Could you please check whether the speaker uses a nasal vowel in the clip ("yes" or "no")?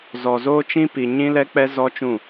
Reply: yes